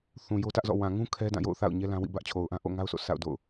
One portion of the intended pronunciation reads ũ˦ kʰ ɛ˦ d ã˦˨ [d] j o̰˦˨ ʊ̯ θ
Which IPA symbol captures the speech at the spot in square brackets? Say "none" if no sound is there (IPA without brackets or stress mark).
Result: none